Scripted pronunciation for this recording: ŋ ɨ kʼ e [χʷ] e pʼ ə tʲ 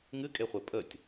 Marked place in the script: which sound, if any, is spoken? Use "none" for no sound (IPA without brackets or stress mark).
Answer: χʷ